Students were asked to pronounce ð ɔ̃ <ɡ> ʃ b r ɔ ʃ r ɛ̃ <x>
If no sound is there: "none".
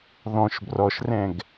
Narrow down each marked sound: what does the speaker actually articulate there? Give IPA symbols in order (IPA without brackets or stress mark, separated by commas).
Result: none, ɡ